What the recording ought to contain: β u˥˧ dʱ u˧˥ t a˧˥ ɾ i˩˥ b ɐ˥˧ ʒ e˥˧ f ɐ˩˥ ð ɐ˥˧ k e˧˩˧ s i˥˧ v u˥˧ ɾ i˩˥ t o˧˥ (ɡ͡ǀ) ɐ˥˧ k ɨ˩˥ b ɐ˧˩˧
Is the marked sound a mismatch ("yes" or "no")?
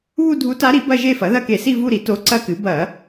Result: yes